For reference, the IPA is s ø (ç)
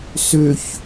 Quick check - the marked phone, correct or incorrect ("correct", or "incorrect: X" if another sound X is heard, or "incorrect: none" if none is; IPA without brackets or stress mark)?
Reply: correct